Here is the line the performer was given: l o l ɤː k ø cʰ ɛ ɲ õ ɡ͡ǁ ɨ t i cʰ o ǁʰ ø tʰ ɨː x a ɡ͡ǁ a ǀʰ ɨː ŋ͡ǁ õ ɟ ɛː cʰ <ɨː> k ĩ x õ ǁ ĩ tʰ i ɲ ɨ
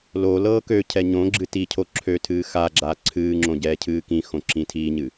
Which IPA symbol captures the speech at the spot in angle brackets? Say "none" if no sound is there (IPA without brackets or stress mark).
ɨː